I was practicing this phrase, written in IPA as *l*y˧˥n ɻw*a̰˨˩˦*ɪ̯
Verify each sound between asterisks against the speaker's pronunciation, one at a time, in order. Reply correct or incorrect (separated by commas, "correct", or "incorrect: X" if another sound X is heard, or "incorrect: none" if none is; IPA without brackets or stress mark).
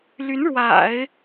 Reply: correct, correct